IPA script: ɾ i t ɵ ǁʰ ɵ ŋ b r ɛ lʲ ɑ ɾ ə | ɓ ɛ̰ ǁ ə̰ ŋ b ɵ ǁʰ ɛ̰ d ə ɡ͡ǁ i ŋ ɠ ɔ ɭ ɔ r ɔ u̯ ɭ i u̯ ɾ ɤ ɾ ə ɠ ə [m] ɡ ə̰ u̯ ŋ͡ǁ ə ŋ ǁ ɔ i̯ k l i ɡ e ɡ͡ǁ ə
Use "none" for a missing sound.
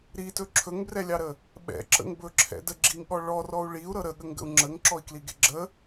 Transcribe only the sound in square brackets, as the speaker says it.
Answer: ŋ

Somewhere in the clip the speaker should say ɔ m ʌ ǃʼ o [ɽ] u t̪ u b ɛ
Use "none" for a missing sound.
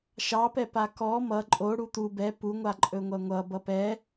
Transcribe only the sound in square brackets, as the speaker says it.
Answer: ɽ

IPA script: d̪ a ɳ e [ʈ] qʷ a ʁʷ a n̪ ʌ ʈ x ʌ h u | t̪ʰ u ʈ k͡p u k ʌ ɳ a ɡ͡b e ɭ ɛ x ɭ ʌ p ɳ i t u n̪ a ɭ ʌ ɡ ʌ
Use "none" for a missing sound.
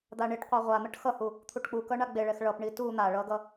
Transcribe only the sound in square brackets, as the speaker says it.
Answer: ʈ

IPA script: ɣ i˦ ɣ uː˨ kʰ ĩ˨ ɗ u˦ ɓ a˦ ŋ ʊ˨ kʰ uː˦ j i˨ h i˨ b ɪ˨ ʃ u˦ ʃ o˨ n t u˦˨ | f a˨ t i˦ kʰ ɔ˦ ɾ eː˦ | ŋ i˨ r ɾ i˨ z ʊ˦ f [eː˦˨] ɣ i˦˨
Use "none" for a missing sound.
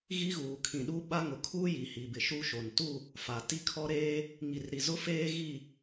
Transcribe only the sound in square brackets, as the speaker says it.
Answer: eː˦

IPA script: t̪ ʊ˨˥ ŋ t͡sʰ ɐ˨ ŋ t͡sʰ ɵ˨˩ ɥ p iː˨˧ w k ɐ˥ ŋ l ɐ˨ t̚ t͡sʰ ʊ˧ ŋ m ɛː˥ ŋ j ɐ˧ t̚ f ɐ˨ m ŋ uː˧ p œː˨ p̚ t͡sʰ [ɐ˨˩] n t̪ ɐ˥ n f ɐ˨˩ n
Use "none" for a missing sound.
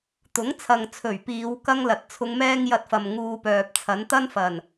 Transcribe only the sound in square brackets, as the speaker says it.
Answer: ɐ˨˥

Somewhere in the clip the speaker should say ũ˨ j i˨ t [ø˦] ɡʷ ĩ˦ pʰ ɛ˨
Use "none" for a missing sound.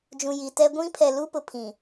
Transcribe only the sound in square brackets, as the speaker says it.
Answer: ɛ˦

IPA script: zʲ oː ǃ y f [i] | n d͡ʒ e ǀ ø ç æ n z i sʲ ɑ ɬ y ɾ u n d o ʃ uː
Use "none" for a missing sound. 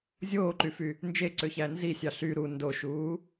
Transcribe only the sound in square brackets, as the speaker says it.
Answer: y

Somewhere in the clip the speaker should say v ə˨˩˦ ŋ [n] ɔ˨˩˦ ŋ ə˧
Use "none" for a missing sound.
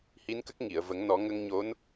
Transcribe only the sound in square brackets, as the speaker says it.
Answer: n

